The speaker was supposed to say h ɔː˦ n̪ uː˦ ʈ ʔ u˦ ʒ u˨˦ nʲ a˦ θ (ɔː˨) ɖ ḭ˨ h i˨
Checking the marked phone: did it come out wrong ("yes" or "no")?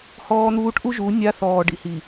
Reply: no